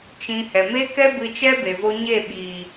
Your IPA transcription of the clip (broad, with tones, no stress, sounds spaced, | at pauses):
t͡ʃ ĩ˧ h ɛ˨ m e˦ k ɛ˦ b ɨ˧ t͡ʃ ɛ˦ b e˨ v o˧ ɲ e˦˨ ɓ iː˨